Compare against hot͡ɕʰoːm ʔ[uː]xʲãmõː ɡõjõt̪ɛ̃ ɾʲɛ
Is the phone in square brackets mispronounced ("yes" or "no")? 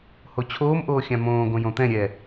yes